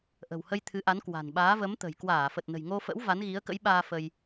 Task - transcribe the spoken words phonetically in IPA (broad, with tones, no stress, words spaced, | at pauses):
ʔə̤˨˩whə˧j t̪ʰɨ˨˦ʔa˨˦nkwa̤˨˩n ɓaː˨˦və˨˦mt̪ə̤˨˩j kwaː˧˩fə˨˩t̚ nə̤˨˩jŋo˧fə̰˧˥w va˨˦nɣi˨˦ə̯kə̰˧˥jɓaː˧ fə˧j